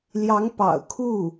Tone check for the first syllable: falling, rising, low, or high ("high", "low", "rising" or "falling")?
rising